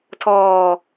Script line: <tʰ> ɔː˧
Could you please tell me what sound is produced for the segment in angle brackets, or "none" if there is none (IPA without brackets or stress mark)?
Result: tʰ